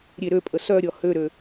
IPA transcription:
ɾʲeɾøpʼə sœɾʲɔ høɾø

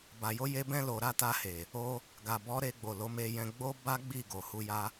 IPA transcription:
ba˨jo˧je˧ bɛ̃˧lo˨ɾa˧ta˧ he˨ | o˧ | ɡa˨bɔ˨˦ɾe˧ɡ͡bo˨ lo˨˦me˧jɛ̃˧ ɡ͡bo˦ba˦ɡ͡bi˦˨ ɡo˨hu˧ja˦

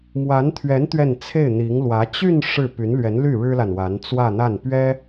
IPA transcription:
mwa˧˥nt̪ʰɥɛ˧˥n t̪ɥɛ˥˧n t͡sʰe˥˩ɪ̯n̪i˧˥ŋlwä˧˥ t͡ɕy˥˧n ʂɻ̩˥˩ py˧˥nlɥɛ˧˥nly˥˩ ɻɻ̩˥la˨nwa˧˥n t͡swä˥˧n̪a˥˩n pɥɛ˥

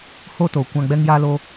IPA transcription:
hoː˦toː˨ kʷã˧ ɡ͡bɛ˦ŋja˦loː˦

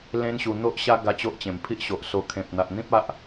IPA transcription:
lẽ˦nɕu˧ n̪o˦ʔɕa˦ ɡa˦t͡ɕo˦ʔt͡ɕẽ˨˩m pʰi˦ʔɕo˨ʔso˧ kʰẽ˨p̚n̪a˨ʔn̪ĩ˦p̚ a˦ʔ

